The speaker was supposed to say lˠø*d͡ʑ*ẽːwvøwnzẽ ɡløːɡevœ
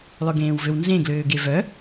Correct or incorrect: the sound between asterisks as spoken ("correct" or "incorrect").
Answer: incorrect